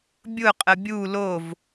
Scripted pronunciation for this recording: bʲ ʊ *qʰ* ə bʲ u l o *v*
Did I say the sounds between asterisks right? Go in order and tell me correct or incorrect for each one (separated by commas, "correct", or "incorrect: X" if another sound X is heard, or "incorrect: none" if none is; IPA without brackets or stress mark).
incorrect: qʼ, correct